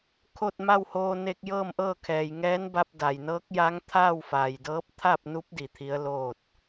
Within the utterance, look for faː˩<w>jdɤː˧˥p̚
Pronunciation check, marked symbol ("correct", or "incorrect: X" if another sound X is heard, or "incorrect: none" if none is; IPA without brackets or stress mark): incorrect: none